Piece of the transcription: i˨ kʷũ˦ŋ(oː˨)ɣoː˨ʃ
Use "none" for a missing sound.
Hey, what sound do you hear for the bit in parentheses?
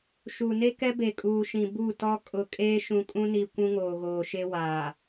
oː˨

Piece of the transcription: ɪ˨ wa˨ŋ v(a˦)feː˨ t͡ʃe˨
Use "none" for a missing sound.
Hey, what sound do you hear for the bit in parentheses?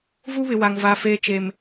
a˨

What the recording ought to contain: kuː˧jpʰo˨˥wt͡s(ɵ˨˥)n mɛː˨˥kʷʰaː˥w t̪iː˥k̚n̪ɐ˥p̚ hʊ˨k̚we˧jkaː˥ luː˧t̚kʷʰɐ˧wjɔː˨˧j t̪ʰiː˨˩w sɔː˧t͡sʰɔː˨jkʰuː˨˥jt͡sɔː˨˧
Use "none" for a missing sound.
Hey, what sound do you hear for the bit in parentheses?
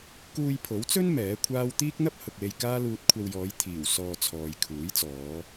ɵ˥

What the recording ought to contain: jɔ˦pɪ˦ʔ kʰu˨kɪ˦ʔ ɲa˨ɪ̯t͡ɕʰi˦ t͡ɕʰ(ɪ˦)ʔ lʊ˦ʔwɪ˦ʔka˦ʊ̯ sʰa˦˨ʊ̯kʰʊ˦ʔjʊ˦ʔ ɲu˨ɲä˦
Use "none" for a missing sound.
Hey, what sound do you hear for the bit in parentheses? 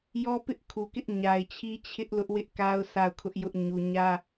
ɪ˦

